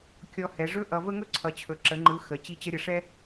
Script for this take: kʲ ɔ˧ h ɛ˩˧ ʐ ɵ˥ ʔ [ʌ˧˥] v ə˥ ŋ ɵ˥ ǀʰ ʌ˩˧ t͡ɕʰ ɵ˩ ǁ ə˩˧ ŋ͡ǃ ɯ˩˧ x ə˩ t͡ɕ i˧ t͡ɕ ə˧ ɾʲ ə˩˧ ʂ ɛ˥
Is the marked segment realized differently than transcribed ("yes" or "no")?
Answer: yes